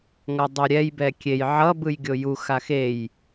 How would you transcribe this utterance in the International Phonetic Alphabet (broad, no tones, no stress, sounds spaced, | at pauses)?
ŋ ʌ dˤ o ɾʲ ɛ j b ɛ kʲ e j ʕ ʌ b ɯ j ɡʲ o j u x a x e j